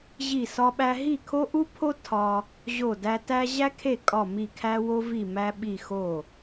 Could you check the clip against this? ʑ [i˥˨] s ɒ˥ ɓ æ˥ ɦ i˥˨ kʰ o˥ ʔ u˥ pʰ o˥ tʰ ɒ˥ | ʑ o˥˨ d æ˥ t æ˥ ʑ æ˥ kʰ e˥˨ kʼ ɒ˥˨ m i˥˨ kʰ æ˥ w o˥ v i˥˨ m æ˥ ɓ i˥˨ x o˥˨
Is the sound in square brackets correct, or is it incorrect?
correct